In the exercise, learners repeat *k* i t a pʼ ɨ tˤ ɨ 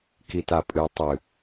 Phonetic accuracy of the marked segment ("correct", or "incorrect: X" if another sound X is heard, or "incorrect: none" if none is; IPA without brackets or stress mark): correct